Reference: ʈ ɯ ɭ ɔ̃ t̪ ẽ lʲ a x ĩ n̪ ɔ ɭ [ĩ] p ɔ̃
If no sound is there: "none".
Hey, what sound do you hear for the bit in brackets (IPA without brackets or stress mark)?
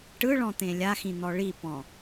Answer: i